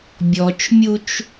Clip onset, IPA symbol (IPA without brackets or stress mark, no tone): bʲ